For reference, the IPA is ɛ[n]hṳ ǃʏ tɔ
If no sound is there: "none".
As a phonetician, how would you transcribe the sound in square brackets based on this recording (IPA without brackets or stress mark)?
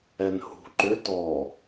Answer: n